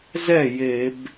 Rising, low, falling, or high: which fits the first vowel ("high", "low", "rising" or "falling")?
falling